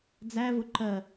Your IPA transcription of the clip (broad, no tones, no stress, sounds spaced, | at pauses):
d͡z æ v ʊ ǃ ɜ